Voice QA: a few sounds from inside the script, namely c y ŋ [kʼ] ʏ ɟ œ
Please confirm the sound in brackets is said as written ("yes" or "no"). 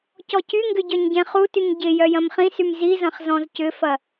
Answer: no